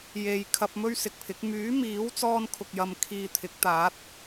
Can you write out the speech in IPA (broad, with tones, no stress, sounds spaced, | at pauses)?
j e˨ j kʰ ɐ˧ p̚ m ɵ˥ ɥ s ɪ˨ k̚ pʰ ɪ˨˥ k̚ m yː˨˥ m iː˨˥ w t͡s ɔː˧ n kʰ ʊ˨ k̚ j ɐ˨ m kʰ iː˨ t̪ʰ ɪ˨˥ k̚ t̪ aː˨˥ t̚